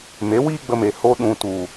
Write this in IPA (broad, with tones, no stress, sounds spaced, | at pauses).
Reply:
m e˨˦ w iː˦ ɡ͡b ə˧ m e˨ h o˧ ɗ ũ˨ t u˨